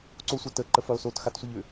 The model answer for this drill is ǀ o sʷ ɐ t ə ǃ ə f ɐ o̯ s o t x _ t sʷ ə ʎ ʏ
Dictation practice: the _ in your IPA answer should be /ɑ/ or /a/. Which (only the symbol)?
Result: a